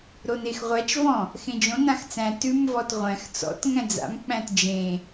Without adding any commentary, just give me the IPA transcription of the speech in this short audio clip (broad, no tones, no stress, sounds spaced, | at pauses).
ɾ o n e x ʁʷ æ t͡ʃ v ɔ̃ | x ẽ d͡ʒ õ n ã x t͡s æ̃ t ʉ m v ɔ t ʁʷ æ̃ x t͡s ɔ̰ t ŋ æ̃ d͡z a̰ m k͡p æ̃ t d͡ʒ ẽ